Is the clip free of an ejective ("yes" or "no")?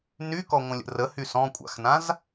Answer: no